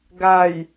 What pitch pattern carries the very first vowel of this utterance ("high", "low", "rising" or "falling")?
low